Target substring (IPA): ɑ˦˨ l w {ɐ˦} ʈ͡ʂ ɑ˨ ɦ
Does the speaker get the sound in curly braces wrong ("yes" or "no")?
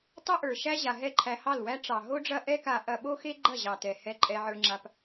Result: yes